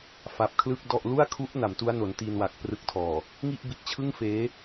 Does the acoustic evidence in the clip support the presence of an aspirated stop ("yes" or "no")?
yes